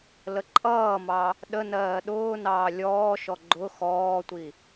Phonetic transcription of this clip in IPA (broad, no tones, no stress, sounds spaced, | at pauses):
l ə ǃʼ ʌː m ɑ | ɗ ə n ɜː ɗ ʊː n ɑː lʲ ɔː ʃ ɔ ɡ͡ǃ ʊ x ɔː tʷ i